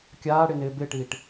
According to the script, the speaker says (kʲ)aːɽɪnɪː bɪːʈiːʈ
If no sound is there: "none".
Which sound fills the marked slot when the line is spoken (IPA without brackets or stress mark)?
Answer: kʲ